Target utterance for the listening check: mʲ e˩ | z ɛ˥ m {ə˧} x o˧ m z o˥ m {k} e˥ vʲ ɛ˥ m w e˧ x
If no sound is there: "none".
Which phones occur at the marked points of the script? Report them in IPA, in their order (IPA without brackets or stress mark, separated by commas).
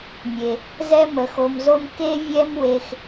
ə˧, k